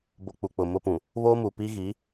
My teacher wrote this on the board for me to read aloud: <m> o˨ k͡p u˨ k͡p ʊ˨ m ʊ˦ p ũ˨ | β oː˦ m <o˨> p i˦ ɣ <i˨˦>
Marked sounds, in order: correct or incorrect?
incorrect, incorrect, correct

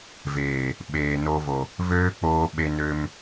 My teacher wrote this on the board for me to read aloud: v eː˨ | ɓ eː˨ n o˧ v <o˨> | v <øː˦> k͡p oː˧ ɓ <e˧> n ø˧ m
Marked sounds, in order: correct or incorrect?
correct, correct, correct

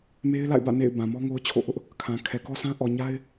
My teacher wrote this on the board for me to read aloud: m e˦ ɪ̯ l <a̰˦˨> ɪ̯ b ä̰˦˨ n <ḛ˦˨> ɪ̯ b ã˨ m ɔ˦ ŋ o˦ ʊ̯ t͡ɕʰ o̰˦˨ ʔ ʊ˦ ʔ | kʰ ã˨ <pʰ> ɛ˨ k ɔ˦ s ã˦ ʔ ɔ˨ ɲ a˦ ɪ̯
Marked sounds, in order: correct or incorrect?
correct, correct, incorrect

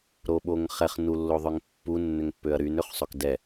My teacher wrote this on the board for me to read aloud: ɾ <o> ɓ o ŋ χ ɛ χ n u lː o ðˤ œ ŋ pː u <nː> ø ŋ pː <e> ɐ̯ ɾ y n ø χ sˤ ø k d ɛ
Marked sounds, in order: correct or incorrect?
correct, correct, incorrect

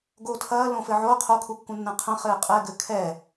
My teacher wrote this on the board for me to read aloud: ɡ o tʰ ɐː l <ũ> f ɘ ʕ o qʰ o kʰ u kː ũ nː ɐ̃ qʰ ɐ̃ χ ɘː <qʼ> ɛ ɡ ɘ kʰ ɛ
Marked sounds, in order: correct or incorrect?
incorrect, correct

